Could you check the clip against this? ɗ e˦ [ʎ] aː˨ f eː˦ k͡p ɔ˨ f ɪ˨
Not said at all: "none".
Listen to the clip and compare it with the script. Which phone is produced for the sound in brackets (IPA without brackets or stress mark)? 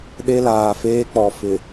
l